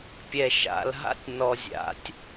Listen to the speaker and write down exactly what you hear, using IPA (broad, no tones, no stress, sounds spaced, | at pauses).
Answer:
pʲ ɛ ʃ a̰ l ɦ a̰ tʲ n ɔ zʲ a̰ tʲ